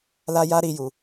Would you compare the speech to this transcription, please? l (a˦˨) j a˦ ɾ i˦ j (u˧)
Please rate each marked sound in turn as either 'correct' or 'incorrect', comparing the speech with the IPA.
incorrect, correct

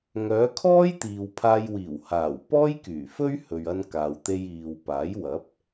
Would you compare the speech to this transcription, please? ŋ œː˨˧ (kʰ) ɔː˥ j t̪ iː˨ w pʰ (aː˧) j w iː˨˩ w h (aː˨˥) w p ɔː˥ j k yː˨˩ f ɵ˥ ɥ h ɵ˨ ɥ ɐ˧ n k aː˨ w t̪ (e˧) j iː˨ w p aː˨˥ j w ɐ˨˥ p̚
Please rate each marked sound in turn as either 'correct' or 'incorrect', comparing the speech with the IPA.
correct, correct, incorrect, correct

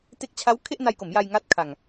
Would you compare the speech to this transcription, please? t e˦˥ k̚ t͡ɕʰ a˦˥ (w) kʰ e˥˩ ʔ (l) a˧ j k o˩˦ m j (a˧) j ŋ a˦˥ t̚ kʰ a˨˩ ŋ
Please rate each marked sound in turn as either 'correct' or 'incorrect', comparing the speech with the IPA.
correct, incorrect, correct

